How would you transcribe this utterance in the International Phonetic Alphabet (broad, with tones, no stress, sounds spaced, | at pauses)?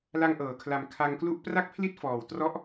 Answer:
l a˧ ŋ ʔ ɤː˩˦ kʰ l a˨˩ m kʰ a˧ ŋ k l u˥˩ ʔ p r a˥˩ k̚ pʰ l i˥˩ t̚ f ɔː˨˩ w t r ɔ˦˥ ʔ